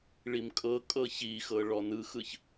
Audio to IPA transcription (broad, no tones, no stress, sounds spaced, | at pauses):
ɭ i m kʼ ɤ kʼ ɤ ç i x ɤ ɭ ɔ n ɯ x ɯ ç